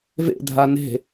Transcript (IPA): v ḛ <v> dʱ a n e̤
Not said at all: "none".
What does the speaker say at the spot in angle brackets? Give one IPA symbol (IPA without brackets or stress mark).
none